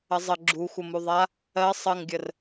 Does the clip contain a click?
yes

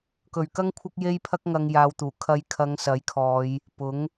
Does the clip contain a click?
no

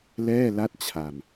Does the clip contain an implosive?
no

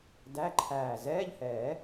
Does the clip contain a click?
yes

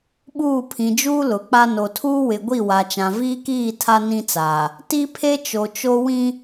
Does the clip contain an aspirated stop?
yes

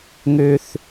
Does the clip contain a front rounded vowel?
yes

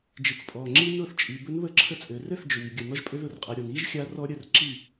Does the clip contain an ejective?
yes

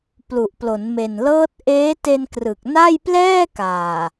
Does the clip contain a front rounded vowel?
no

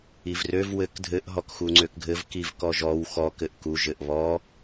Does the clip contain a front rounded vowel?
yes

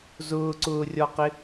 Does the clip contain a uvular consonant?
yes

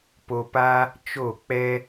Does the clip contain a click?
no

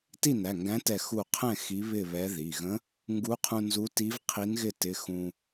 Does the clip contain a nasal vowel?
yes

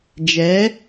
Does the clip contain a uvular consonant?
no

